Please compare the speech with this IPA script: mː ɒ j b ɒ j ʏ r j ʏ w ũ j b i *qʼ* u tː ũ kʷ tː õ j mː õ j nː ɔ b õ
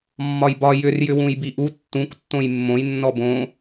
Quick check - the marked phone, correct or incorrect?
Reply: incorrect